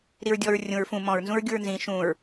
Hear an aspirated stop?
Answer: no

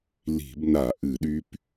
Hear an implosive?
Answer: yes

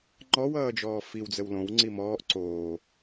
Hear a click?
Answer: yes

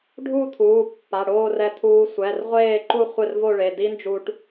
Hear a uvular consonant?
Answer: yes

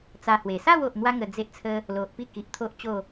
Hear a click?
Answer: no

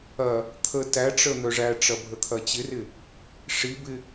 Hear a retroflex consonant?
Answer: yes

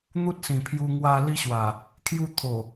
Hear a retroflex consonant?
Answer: no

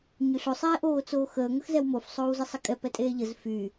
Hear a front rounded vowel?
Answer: yes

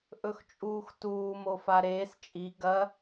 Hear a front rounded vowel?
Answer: no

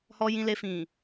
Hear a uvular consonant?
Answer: no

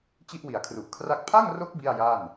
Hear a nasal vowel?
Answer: no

